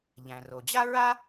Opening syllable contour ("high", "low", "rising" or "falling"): low